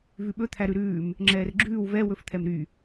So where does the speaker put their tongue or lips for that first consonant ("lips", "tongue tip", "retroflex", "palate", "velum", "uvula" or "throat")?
lips